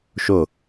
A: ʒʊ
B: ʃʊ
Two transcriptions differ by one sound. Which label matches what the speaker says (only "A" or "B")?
B